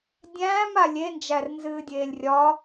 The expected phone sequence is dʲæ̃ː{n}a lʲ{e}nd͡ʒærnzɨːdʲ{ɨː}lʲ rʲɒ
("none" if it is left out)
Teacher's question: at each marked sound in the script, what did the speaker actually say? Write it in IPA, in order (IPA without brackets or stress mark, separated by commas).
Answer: m, e, eː